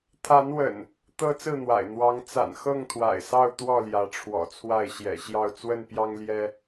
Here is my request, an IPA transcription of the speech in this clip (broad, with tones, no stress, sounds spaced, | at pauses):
t̪ʰ a˨˦ n w ə̰˨˩ n | t̪ ɤ˦ t͡s ɹ̩˥˨ n̪ w a̰˨˩ ɪ̯ n̪ w ɑ˨˦ ŋ t͡s a̰˨˩ n x ɤ˥˨ ŋ t̪ʰ w a̰˨˩ ɪ̯ s ɑ˥˨ ʊ̯ t̪ w ɔ˥˨ l j ä˨˦ ʈ͡ʂʰ w ɔ̰˨˩ t͡sʰ w a˥˨ ɪ̯ ɕ j ɛ̰˨˩ ɕ j ɑ˥˨ ʊ̯ t͡s w ə˥˨ n p j ɑ˦ ŋ l j ɛ˦